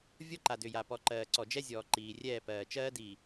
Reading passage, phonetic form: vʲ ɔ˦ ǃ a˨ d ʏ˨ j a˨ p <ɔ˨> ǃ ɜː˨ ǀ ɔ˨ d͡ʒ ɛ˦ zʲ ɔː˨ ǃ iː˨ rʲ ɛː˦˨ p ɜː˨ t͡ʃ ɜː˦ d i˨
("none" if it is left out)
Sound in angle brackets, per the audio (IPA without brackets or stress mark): ɔ˨